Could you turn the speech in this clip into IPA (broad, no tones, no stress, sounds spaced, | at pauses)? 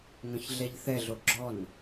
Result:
ŋ œ̃ ç ɮ ɛ ʎ θ ɛ ɮ o ɡ͡ǁ ɔ n